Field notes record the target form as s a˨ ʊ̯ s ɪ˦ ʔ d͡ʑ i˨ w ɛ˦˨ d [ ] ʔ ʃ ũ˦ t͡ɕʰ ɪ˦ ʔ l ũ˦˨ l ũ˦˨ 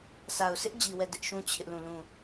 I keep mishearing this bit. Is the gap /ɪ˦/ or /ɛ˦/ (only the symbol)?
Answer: ɪ˦